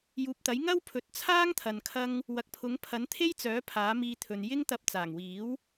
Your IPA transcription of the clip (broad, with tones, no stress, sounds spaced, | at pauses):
j uː˨ p̚ t̪ ɐ˨˥ j ŋ ɐ˥ w pʰ ɵ˨˥ t̚ t͡sʰ aː˥ ŋ t̪ʰ ɐ˨ n kʰ ɐ˥ ŋ | w ɐ˨ k̚ pʰ ʊ˨˥ ŋ pʰ ɐ˨˥ n t̪ʰ e˥ j t͡s œː˨˥ pʰ aː˨˥ m iː˧ t̪ʰ ɵ˨ n j ɪ˥ ŋ t̪ ɐ˧ p̚ t͡s aː˨˩ ŋ w iː˨˥ w